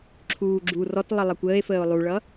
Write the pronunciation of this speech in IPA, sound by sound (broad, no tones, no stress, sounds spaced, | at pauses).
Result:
ǁʰ uː ɡ͡ǁ u r ɔ t lˠ ə lˠ ʌ kʷ əː e̯ f əː o̯ lˠ u ɭ ʌː